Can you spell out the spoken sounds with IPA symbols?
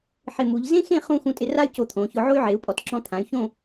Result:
ħɪ˧˩mu˩˧ʎ zẽ˥xẽ˥˧ χũ˥˧ xũ˧tʼɪ˧ra˥y̯ co˧t̪ʰõ˩˧çʊ˧ ʕo˥y̯ ʕe˩˧u̯pʼɔ˩˧tǁɔ̃˧t̪ʰã˩˧y̯ çõ˥˧

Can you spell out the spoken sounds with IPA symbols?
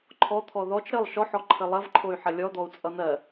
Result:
ǃʰɔt̪ʰɔ ðɔt͡ʃ ɾəlˠ ʃɔħɔǃʰə lˠɐvǃʰoy̯ ħɐlʲɔd̪ɔu̯ t͡sʼʌn̪ɜ

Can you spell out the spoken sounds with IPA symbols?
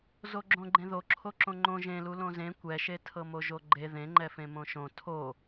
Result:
zoɡ͡ǁõɡ͡ǃẽðo ǁʰoǁõŋ͡ǃõ ʒẽlu lõzẽ kʷɛʃe tʰɤmoʒoɡ͡ǃe ðẽŋ͡ǃɛfẽmõ ʃõ tʰo

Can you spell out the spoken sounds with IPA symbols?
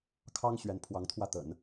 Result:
kʰɑ˥ŋ ɕɥɛ˥n pʰwɑ˧˥ŋt̪ʰwä˥˩t̪ə̰˨˩˦n

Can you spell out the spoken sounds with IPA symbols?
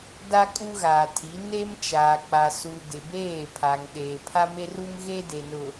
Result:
da˦ kʼu˦ɣaː˨tʰi˨˦ ne˦m t͡ʃaː˨k͡pa˨su˨ dɪ˨beː˦˨pʰa˨ŋ ɗeː˨pʰa˦me˦ru˦m ɣe˦de˨nʊ˨

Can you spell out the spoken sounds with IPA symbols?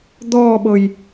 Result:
d̪ɔːɓɤj

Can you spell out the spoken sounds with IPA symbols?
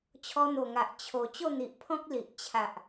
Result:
t͡ɕʰɔ˧n̪o˨˩ŋa˨ʔ t͡ɕʰo˨˩ t͡ɕo˥˧n̪i˨ʔpʰɔ̃˦k̚ li˨ʔ t͡ɕʰa˨ʔ

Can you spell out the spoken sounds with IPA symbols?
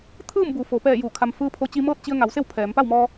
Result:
t̪ʰɯː˥˨mbu˩ fo˩˧ pɛː˧˩ juː˧˩kʰa˧m fɯː˧˥pʰo˧ t͡ɕi˧mɤː˥˨t̚ t͡ɕi˧ə̯ ŋa˩˧wse˥˨w pʰɛː˩˧m pa˥˨wmɔː˧

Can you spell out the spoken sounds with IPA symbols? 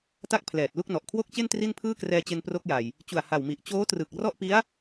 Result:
ta˥˩k̚pʰlɛː˨˩t̚lu˥˩k̚nɔ˨˩ʔ kʰwo˥˩k̚t͡ɕe˥˩n tri˥˩npʰɯː˥˩krɛː˧t͡ɕe˧n pro˦˥k̚ja˨˩j | t͡ɕu˨˩a̯ha˨˩wmi˨˩ʔ t͡ɕoː˦˥trɯ˨˩k̚ rɔ˥˩ʔpi˦˥a̯

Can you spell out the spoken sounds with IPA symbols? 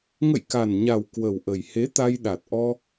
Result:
ŋə̰˧˨jka˨˩nɲa˨˩w kwə˨˩wʔə˨˩jhe˨˦ t̪a˧jɗa˨˩t̚ʔɔ˧

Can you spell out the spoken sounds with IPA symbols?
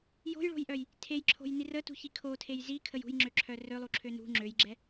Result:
jo̤jɭo̤jʔœj | tʰejǁʰo̤jni rətṳçi kʰotʰej zikʰəj ṳjŋ͡ǁøǁʰœ rølˠuǁʰø nṳ ŋ͡ǁøjɡ͡ǁɛ

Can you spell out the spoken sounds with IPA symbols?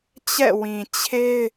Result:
t͡ɕɛ̰˦˨wĩ˨ t͡ɕʰe˦ɪ̯

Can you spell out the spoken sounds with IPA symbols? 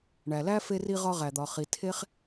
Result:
ɳæ˩læ˥ fe˧ri˧ʁɒ˧ ʁæ˩d̪ɒ˩χi˩ tʰe˥χ

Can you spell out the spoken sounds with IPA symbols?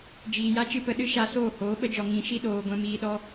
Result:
d͡ʒiː˨ja˦t͡ʃɨ˦pə˧ ɗɨ˦ʃa˧ soː˦˨hoː˨˦ɓə˦d͡ʒɔ˨ ŋĩ˨ʃi˧ ɗoː˨ ɡʷɛ̃˧miː˧ɗɔ˦

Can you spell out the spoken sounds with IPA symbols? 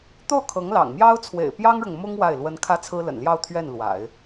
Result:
t̪o˥˩ʊ̯kʰɤ˧˥ŋlɑ̰˨˩ŋmjɑ˥ʊ̯ t͡sʰwḛ˨˩ɪ̯pjɑ˥ŋɻʊ˨ŋ mʊ˥ŋ wa˥˩ɪ̯lwə˥n kʰä˥t͡sʰɹ̩˥lə̰˨˩nljɑ˥˧ʊ̯ t̪ʰɥɛ˥˩nlwa̰˨˩˦ɪ̯

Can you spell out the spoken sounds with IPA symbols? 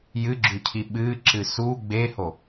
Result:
jɨɡ͡ǁʉcʰi ɓɨːǁɨ su ɡ͡beho

